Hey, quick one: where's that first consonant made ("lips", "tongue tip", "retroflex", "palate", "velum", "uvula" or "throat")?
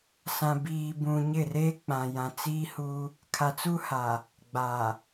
tongue tip